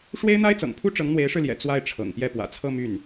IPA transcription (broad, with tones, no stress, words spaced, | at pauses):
ʂwe˥ɪ̯n̪a˥ɪ̯t͡sɤ̰˨˩ŋpʰu˥ ʈ͡ʂɤ˧˥ŋn̪we˧˥ɪ̯ʂɻ̩˧ljɛ̰˨˩ t͡swa˥˩ɪ̯ʈ͡ʂʰɤ̰˨˩ŋpjɛ˥˩ pwä̰˨˩t͡sʰɤ˥˧ my˥˩n